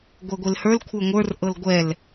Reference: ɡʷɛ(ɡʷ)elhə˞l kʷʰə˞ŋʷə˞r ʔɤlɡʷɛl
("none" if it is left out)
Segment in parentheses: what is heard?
ɡʷ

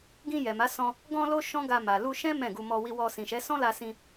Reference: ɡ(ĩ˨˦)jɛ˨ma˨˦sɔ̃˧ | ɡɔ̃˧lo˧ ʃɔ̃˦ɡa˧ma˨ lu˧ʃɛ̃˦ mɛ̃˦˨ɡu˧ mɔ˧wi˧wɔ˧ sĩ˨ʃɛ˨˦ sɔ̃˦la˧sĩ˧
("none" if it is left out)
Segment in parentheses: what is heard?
ĩ˧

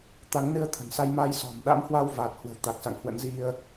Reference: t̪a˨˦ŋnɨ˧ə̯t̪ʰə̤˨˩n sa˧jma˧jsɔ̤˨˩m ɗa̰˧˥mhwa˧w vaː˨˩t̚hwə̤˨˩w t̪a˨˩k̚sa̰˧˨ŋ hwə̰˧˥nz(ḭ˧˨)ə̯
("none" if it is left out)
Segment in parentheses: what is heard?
i˧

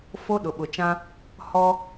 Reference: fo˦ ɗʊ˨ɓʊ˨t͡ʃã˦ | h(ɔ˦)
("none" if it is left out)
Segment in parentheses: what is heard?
ɔ˦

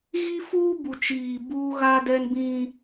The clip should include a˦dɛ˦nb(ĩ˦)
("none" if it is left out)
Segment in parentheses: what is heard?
ĩ˦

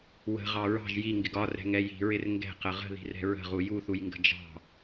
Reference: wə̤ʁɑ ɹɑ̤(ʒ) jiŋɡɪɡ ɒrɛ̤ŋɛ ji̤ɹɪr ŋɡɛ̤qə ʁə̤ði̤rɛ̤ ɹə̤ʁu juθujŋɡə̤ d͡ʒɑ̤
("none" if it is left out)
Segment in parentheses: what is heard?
ʒ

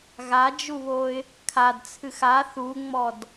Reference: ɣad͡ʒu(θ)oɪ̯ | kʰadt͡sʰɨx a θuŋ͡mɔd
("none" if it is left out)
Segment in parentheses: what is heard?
β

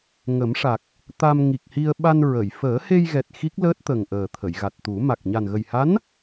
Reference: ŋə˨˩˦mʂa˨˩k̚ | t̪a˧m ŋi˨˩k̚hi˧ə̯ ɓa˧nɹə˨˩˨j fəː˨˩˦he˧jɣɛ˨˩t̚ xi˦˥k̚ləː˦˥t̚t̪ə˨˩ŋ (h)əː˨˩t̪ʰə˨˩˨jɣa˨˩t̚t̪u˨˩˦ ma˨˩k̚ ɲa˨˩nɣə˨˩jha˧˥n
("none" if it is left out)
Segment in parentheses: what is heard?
ʔ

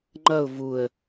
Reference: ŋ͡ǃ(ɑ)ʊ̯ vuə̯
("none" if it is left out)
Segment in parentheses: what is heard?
ʌ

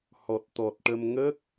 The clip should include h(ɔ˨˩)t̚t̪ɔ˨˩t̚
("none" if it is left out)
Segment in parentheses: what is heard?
ɔ˨˩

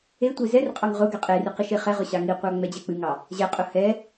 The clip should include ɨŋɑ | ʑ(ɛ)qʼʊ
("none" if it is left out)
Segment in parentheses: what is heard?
ɛ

